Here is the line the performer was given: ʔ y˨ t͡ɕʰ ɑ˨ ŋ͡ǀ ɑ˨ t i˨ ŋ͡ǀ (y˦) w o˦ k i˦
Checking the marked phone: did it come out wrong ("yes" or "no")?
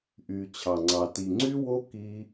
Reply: no